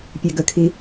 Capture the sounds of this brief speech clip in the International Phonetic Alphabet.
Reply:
pʲ e ɡ ə kʰ i

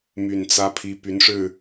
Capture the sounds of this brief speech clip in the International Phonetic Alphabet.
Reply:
m y˨˩ n t͡s ä˨˦ pʰ i˨˦ p y˨˦ n ʂ ɻ̩˥˨

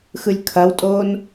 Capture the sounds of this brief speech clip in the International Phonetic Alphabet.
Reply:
x ɯ lʲ kʰ ɐ w tʼ oː n

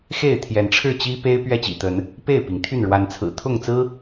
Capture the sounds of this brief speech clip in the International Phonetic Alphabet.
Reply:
x e˥˨ ɪ̯ t̪ʰ j ɛ˨˦ n ʈ͡ʂʰ ɻ̩˥˨ t͡ɕ i˦ p e˦ ɪ̯ p ɥ ɛ˥˨ t͡ɕ ḭ˨˩ t̪ ə˨˦ n | p e˥˨ ɪ̯ p i˩ ŋ t̪ʰ y˥˨ n ɻ w a˨˦ n t͡sʰ ɹ̩˨˩ t̪ʰ ʊ˥˨ ŋ t͡s ɹ̩˦

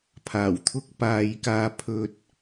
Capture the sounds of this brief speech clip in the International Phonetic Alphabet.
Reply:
pʰ aː˨˩ w t̪ʰ ʊ˧ k̚ p aː˨ j k aː˧ pʰ ɵ˧ t̚

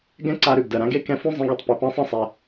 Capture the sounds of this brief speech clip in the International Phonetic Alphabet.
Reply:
ɡ ɛ̃˥ ǀ a˧ ɾ ʉ˩ ɡ d ɜ˩ ɾ ã˥ ɡ e˥ k ɛ̃˧ f ũ˥ zˤ ĩ˧ ɡ e˩ tˤ p ʉ˩ p ã˧ sˤ ã˥ sˤ ɛ˩

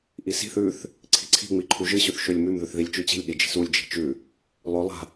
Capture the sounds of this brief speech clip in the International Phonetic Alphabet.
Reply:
ʔ i s i̤ θ ʉ θ | ǀʰ i̤ ǀʰ i̤ ŋ͡m i ǃʰ u ʒ ɨ ɕ ʉ θ ʃ ɵ lʲ m ʉ m ð ʉ θ ð i lʲ t͡ʃ ʉ t͡ɕ i̤ lʲ ɗ i d͡ʒ i̤ s u lʲ d͡ʒ i̤ t͡ʃ ʉ | lˠ ɵ lˠ a̤

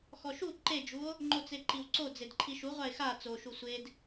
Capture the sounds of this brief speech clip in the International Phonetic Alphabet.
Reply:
x ɔ ʃ u ǃ e d͡ʒ u o̯ | ŋ͡ǃ o t͡s e ǃ i w ǀ o d͡z e d ǃʰ i ʃ u ʁʷ a e̯ x a t͡s o ʃ u sʷ e d

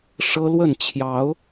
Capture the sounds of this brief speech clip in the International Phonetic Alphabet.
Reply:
ʂ ɤ˦ l w ə˥˨ n t͡ɕʰ j ɑ˨˦ ʊ̯

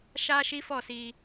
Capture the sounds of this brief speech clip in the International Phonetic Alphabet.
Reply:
ʃ a˦ ʃ i˦ f ɔ˦˨ s i˧

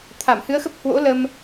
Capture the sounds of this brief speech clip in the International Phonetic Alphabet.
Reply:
t̪ʰ a˧˩ m h ɨ˨˦ ə̯ x ə˦˥ p̚ h w o̰˧˥ l ə˧ m

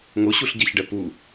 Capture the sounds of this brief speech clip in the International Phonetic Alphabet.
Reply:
ŋ o ɕ u ɬ ɟ ɛ ç ɖ ɛ p u

